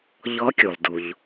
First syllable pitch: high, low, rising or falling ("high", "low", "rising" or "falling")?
rising